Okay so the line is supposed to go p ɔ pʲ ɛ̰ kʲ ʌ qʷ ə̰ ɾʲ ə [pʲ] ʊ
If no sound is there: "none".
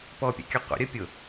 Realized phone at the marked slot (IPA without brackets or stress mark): pʲ